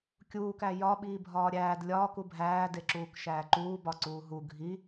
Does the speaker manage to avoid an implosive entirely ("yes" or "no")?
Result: no